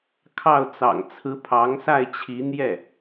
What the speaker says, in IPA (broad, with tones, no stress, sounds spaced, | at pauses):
kʰ ɑ˥˩ ʊ̯ t͡s ɑ̰˨˩ ŋ t͡sʰ ɹ̩˧˥ pʰ ɑ˧˥ ŋ s a˥˩ ɪ̯ t͡ɕʰ i˧˥ n̪ j ɛ˥˩